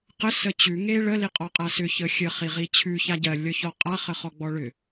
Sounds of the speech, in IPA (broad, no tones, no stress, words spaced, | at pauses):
qə sət͡ɕʉ ŋeɭə liqʼɔqʼasʏ çəxʲə χiʁit͡ɕʰʉ çaɟɜ lʲɔçɔqʼa χəχɔɡ͡bɔɭʏ